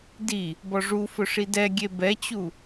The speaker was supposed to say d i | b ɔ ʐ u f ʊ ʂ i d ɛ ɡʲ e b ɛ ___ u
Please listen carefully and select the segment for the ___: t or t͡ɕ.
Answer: t͡ɕ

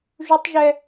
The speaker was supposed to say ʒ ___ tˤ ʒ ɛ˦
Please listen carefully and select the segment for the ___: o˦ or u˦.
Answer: u˦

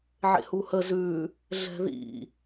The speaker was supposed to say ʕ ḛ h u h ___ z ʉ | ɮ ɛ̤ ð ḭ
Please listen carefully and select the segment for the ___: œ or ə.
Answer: ə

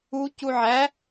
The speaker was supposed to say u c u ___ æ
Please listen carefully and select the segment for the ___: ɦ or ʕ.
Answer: ʕ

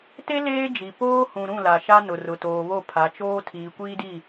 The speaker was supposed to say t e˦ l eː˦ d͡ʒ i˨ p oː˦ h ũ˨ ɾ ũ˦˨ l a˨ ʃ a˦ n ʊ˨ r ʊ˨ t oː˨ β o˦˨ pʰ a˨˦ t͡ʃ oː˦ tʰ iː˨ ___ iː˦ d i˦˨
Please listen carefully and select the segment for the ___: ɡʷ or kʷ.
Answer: kʷ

